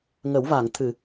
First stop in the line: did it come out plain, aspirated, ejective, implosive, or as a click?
aspirated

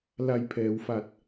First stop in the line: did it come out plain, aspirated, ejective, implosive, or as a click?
aspirated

